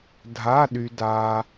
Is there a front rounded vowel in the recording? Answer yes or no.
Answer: yes